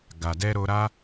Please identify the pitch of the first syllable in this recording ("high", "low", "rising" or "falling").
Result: low